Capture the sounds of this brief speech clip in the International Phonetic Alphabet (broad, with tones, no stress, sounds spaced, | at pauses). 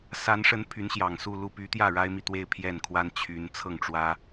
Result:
s a˧˥ n ʂ ə˧˥ n pʰ y˧˥ n ɕ j ɑ˨˩ ŋ s u˥˧ l u˥˩ p y˧˥ t̪ j ä˥˩ ɻ a˥ ɪ̯ m i˨ t̪ w e˥˧ ɪ̯ pʰ j ɛ˥˩ n kʰ w a˥ n t͡ɕʰ y˧˥ n t͡sʰ ɤ˥˩ ŋ ʈ͡ʂ w ä˥